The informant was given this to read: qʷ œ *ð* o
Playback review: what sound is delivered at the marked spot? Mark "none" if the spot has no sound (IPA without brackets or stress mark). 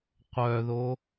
ð